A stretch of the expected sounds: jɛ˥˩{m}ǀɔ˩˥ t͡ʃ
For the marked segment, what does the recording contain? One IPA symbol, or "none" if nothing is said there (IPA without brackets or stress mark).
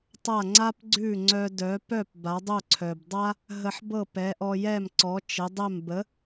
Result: m